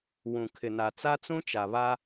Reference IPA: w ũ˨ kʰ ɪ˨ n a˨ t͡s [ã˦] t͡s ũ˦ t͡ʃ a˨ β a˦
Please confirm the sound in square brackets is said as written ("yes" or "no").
no